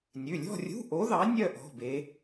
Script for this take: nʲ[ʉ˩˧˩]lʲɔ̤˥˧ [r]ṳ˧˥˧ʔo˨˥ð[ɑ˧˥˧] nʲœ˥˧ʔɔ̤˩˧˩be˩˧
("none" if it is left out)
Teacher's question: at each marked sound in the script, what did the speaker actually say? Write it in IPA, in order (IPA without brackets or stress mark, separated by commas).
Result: ʉ˩˧˩, rʲ, ɑ˨˥